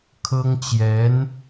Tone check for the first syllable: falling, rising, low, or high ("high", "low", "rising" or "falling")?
high